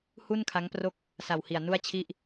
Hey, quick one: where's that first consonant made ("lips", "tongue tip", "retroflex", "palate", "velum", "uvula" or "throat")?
throat